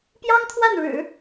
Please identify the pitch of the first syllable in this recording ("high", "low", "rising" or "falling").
high